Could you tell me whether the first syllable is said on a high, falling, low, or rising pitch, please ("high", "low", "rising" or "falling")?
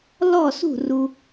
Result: falling